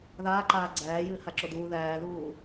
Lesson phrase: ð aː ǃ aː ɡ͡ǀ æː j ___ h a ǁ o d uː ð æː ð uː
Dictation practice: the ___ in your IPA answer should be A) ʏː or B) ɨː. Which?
B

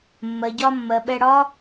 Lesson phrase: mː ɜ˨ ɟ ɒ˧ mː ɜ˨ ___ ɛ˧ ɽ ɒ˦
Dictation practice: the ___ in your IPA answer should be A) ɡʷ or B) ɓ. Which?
B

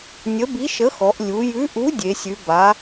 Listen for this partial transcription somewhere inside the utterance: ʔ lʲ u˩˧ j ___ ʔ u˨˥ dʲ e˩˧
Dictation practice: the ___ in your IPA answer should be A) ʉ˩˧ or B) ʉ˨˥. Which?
B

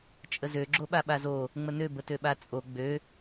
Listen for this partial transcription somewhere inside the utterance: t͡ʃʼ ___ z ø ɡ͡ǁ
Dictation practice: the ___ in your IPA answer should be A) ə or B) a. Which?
A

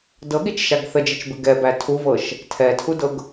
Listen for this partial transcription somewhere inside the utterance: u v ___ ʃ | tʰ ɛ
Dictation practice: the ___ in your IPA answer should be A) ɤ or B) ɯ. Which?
A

